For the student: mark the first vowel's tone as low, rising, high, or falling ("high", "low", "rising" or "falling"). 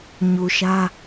low